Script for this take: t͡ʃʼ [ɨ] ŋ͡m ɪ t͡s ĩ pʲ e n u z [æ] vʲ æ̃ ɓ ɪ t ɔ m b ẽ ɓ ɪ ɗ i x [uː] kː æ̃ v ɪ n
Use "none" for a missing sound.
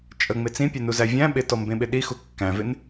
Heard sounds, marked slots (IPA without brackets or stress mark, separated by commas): ə, æ, u